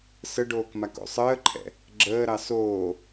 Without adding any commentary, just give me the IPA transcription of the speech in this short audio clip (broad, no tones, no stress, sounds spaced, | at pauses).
s ə ɖ oː k m a k o̰ sˤ əː ǃʰ ɛ̰ | ɡ͡ǁ əː ɾ ɑ s oː